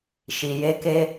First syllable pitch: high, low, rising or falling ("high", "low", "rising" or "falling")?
low